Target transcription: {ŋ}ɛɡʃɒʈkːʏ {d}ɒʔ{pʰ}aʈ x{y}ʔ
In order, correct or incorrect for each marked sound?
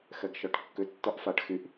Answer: incorrect, incorrect, incorrect, correct

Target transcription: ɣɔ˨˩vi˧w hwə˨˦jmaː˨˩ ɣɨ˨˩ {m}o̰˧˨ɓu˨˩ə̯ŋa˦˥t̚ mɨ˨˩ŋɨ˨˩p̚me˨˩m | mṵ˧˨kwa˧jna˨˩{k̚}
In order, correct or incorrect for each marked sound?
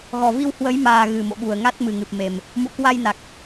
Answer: correct, correct

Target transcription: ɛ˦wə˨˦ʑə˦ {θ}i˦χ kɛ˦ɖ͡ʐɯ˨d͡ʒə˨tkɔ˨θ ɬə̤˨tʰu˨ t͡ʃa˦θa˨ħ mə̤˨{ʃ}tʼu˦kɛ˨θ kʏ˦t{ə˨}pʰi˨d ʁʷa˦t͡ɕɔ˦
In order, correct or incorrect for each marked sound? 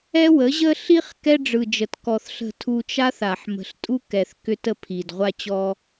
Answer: incorrect, incorrect, incorrect

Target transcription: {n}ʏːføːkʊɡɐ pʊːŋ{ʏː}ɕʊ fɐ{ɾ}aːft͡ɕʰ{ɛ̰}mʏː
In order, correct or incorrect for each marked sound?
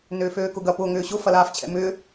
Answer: correct, correct, incorrect, correct

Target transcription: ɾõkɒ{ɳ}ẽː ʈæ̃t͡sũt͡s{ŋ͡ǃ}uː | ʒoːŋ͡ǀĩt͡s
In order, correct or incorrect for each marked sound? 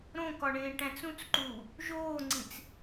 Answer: correct, incorrect

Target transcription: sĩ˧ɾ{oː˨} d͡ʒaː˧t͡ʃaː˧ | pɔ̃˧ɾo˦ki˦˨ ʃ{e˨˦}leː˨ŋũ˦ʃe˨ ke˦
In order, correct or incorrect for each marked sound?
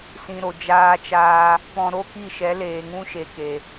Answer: incorrect, incorrect

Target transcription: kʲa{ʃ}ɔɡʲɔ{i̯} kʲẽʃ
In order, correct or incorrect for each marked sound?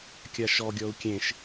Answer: correct, incorrect

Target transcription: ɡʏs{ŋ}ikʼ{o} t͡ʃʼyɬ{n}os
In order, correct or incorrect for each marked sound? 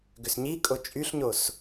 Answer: incorrect, correct, incorrect

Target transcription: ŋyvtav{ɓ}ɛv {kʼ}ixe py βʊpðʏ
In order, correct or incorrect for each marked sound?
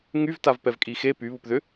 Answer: incorrect, correct

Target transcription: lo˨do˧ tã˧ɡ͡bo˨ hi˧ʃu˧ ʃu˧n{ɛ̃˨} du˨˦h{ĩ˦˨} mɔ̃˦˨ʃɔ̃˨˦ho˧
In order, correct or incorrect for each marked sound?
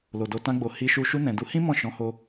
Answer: correct, incorrect

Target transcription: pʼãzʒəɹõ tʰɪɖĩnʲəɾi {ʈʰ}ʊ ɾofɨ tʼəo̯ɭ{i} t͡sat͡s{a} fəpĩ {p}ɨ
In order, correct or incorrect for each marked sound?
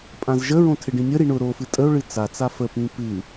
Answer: incorrect, incorrect, correct, correct

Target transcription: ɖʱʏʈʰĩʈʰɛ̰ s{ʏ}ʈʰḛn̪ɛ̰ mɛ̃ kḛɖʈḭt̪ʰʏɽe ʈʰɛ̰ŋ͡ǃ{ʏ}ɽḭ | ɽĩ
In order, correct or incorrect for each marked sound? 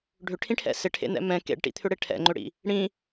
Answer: incorrect, correct

